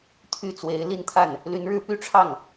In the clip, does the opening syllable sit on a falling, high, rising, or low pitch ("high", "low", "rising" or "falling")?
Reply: falling